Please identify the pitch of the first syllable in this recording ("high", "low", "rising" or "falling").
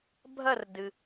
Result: falling